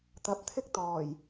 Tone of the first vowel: rising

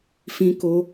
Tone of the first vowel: high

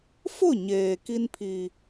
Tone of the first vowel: falling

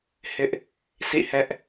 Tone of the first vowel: high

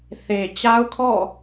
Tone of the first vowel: low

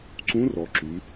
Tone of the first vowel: rising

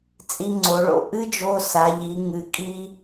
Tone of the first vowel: high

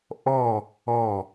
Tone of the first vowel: falling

